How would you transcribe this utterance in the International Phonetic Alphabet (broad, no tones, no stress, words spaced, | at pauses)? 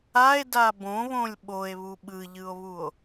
ae̯da bõβõlʲ ɓoe̯βu ɓɯʎɯo̯βuo̯